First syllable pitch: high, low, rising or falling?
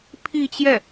falling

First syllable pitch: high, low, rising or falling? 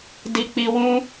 low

